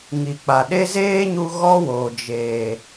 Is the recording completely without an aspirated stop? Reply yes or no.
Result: yes